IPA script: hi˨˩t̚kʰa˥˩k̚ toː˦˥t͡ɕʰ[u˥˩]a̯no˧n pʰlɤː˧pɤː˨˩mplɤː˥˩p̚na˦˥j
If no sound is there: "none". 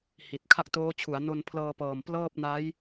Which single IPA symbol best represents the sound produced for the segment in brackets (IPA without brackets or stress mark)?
u˩˦